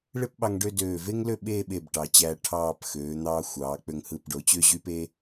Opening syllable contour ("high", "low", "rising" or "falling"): high